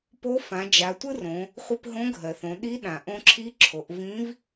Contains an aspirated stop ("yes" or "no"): yes